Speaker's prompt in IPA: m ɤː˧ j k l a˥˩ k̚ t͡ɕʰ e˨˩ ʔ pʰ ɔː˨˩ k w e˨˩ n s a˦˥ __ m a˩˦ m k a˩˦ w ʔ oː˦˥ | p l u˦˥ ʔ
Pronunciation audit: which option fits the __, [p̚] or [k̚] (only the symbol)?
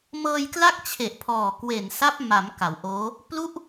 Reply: p̚